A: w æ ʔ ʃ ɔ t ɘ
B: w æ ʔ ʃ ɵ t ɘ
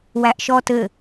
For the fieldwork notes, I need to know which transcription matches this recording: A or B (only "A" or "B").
A